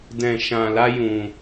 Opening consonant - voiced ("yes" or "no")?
yes